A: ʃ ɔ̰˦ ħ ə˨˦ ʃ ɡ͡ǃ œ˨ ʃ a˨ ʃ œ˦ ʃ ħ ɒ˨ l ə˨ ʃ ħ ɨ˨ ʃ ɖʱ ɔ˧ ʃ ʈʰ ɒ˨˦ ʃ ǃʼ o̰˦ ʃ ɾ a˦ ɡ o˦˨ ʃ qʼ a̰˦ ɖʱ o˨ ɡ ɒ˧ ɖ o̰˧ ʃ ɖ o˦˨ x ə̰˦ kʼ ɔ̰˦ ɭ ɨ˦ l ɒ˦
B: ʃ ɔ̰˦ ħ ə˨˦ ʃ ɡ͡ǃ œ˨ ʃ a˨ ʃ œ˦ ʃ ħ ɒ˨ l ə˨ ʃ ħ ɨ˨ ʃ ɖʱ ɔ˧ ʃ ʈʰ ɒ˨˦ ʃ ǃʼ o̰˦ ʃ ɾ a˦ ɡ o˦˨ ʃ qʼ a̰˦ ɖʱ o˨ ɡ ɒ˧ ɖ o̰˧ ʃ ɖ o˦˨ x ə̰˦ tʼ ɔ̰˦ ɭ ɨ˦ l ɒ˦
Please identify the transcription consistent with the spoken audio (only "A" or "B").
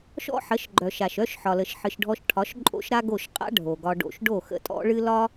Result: B